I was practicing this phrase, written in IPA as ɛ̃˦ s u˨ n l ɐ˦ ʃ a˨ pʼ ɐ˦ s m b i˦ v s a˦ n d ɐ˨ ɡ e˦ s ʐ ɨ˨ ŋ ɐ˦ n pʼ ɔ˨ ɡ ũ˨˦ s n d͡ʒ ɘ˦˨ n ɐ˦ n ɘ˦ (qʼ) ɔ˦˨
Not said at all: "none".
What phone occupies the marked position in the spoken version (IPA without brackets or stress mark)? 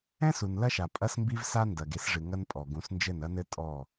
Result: tʼ